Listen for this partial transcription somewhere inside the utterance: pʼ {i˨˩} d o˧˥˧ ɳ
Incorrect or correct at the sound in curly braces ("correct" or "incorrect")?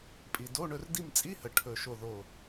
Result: correct